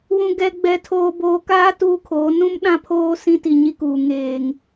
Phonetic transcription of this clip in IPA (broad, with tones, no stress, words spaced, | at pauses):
wũ˨ɡɛ˨ɡ͡bɛ˨tʰoː˨ boː˨kaː˦ tuː˦kʰoː˨˦ nũ˦m ɗã˦pʰoː˦ sĩ˦ti˨ɲi˦kuː˨ ŋeː˨ŋ